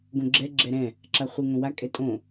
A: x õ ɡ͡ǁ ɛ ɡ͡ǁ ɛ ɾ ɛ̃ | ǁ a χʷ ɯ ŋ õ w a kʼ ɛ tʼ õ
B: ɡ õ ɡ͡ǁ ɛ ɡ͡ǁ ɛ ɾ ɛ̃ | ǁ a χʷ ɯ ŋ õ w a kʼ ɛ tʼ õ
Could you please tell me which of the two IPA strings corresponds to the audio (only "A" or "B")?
B